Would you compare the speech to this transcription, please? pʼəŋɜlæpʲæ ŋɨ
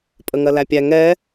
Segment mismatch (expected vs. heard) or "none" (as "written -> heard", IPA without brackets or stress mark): ɨ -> ɛ